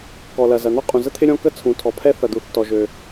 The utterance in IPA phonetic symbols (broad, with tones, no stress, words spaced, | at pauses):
kɔ˩lɐ˩zɐ˩ n̪ɔ˥ qʼũ˩zə˥ t̪ʰɪ˥ɾʲɔ̃˥ kə˥t͡sʰũ˩tʰɔ˩ pʰɛ˥θɐ˩d̪u˩θtɔ˩ ʒø˩